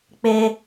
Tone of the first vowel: high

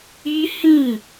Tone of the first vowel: high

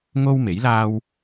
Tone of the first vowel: high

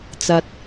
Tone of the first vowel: rising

